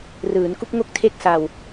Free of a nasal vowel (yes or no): yes